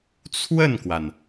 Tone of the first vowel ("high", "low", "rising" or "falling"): falling